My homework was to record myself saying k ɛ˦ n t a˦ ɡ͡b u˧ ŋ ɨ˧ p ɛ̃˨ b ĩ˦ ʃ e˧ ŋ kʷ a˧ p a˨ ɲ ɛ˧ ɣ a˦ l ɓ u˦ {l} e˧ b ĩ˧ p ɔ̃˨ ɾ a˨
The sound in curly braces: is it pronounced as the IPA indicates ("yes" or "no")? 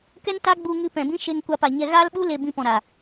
yes